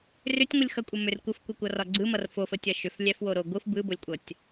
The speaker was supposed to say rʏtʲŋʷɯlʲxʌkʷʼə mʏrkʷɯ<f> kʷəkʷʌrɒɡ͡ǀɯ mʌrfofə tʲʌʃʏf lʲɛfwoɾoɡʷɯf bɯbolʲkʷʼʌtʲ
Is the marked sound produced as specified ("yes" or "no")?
yes